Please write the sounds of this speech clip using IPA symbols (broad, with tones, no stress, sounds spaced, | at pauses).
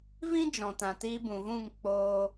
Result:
v ĩ˦ d͡ʒ ɔ̃˨ t ã˨ t iː˧ b ũ˨ v ũ˦˨ ŋ k͡p oː˧